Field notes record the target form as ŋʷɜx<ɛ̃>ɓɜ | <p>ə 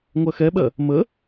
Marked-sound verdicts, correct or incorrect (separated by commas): incorrect, incorrect